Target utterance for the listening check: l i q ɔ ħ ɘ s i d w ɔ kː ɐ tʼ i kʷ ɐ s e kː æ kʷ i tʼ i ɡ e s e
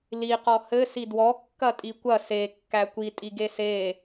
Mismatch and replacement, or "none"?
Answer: ħ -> h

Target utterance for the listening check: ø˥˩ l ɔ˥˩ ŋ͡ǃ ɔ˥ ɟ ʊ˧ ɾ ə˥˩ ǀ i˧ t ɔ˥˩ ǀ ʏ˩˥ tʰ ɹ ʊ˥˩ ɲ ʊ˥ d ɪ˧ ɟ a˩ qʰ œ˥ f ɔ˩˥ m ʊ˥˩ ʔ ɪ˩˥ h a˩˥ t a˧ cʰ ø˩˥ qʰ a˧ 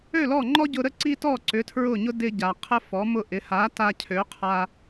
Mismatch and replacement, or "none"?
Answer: œ˥ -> ə˥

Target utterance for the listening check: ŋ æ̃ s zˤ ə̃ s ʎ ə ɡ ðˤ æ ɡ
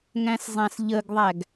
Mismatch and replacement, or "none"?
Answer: ə̃ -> æ̃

